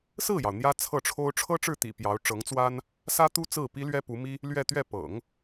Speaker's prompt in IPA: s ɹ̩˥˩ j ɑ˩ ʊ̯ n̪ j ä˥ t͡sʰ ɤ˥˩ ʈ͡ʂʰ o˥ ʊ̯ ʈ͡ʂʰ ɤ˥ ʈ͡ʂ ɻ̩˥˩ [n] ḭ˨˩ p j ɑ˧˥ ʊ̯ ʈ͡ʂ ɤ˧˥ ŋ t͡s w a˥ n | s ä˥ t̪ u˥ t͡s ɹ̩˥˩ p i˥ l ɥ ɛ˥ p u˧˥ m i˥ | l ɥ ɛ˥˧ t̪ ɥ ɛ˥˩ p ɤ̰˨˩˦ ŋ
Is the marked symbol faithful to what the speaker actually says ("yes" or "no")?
no